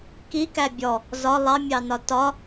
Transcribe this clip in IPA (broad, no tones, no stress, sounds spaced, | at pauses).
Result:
k i k æ bʲ ɔ | z ɒ lˠ ɑ mʲ ɑ n ɒ t ɒ